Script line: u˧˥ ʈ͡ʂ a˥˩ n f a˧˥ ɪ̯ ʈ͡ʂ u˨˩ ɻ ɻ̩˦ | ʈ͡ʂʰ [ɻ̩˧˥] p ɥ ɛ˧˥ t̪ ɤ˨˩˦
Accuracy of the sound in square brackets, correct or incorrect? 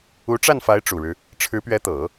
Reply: correct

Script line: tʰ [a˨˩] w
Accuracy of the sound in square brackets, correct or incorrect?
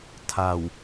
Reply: correct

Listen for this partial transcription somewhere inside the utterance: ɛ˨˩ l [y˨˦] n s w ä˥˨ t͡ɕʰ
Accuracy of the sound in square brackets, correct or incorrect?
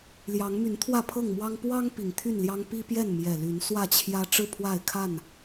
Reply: correct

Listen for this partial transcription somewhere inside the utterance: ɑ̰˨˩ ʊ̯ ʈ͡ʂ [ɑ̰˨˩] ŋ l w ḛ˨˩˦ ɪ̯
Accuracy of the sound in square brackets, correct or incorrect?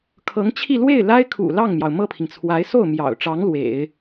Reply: incorrect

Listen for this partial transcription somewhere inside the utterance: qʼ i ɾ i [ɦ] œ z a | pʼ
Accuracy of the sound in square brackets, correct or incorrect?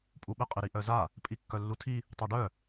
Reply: incorrect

